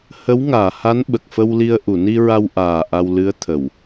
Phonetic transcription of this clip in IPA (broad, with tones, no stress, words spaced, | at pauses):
hə˧˥wŋaː˨˩˨ha˧˥n ɓə˨˩k̚fə˧wli˧ə̯ ʔu˨˩˨ ni˧ɹa˧wʔaː˨˩ ʔa˧wlɨ˧˥ə̯t̪ʰə˨˩˨w